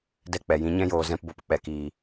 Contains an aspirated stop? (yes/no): no